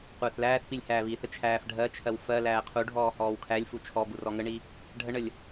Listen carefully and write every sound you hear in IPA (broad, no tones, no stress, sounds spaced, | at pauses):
qʷ əː θ l æː θ p i lʲ h æː β i θ ə t͡ʃʰ æː f ɖʱ ɜ t͡ʃʰ ɜ w f ɜ l æː qʰ u ɖʱ ɔː h ɔː w kʰ æ lʲ f u t͡ʃʰ ɔ b u r ɔ ŋ ə ɳ i | ɖʱ ə ɳ ə lʲ